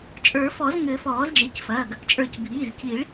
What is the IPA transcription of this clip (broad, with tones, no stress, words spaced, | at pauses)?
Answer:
t͡ʃʼə˞˨˩˦fɔ˨˩˦zŋɘ˨˩˦ fɔː˨˩˦z d͡ʒe˩˧˩cfɐː˩˧˩ɡ | t͡ʃʼə˞˨˩˦cbʱiː˩˧˩z ci˨˩˦ɭ